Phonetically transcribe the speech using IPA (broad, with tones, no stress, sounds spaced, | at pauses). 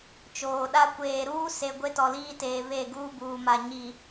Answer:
t͡ʃ oː˨ ɗ a˦ kʷ eː˨ ɾ uː˦ s e˨ ɡʷ e˦ t ɔ˨ l iː˦ t eː˨ β e˦˨ ɡ uː˦ b uː˨ m a˨ ɲ i˨